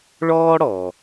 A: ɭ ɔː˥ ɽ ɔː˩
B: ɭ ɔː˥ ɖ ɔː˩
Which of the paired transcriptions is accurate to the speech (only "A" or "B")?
A